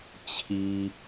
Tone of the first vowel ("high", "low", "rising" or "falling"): high